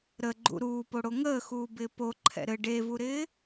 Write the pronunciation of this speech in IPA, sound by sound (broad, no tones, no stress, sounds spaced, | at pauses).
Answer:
ɾ ə ɡ͡ǃ ṵ ɾ uː p o ɽ o ŋ əː x uː b ɪː p o ǃʰ ɛ̰ ɾ ɘ ɖ e v u ɾ ɪː